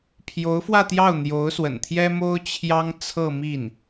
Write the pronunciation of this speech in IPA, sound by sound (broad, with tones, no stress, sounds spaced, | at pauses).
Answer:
pʰ j o˧˥ ʊ̯ f w ä˥˧ t̪ j ɑ˥˩ ʊ̯ n̪ j o˧˥ ʊ̯ s w ə̰˨˩ n t̪ʰ j ɛ˥ m o˥ ʊ̯ t͡ɕʰ j ɑ˥ ŋ t͡sʰ ɤ˥˧ m i˥˩ n